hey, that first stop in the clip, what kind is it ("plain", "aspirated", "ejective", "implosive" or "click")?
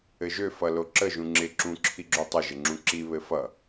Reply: click